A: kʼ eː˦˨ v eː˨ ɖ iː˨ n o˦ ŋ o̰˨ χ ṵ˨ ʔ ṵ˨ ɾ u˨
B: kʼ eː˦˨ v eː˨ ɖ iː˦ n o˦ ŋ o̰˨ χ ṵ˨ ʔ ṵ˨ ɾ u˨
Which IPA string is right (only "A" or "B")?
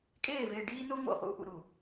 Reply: B